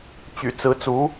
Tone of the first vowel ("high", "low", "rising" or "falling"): low